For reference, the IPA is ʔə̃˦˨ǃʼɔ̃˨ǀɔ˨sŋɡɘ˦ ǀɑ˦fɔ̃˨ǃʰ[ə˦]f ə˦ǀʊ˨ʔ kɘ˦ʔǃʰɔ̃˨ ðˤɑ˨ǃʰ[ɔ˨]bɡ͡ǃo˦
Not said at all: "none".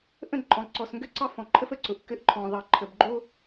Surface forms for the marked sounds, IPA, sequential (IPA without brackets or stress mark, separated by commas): ə˦, ə˨